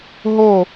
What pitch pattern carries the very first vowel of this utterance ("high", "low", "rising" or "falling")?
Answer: falling